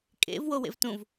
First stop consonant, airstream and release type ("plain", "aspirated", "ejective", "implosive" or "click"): ejective